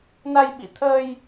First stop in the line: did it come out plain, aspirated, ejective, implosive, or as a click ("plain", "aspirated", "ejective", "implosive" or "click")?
implosive